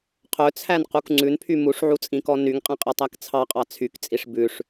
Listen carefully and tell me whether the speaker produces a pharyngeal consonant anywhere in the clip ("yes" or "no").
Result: yes